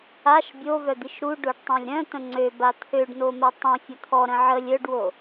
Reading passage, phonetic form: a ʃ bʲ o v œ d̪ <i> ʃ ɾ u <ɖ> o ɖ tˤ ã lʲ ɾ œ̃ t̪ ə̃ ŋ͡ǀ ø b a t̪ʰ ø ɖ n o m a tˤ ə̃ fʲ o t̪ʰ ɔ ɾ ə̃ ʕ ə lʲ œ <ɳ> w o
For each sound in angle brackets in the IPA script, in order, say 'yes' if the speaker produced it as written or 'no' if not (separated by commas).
yes, yes, no